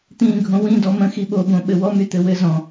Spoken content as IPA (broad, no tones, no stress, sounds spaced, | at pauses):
t̪ ĩː ɡʱ õ w ĩ d ɔ m ə̃ x i ɓ o b õ ɓ ɘ w ɔ m y t̪ ɘ w ɘ z ɔ̃